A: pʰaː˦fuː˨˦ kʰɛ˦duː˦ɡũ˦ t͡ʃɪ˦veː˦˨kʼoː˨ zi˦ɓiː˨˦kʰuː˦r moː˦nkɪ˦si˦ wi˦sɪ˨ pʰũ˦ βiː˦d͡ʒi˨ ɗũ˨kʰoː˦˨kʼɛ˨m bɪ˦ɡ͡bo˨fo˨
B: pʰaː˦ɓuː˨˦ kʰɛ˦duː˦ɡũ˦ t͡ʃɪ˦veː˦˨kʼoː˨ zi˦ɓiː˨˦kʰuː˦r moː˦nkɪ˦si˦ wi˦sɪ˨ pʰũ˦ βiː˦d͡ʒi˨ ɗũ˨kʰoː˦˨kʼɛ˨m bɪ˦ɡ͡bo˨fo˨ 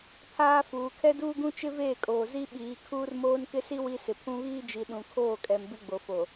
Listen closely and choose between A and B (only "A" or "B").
A